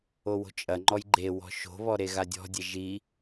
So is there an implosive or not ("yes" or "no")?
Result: no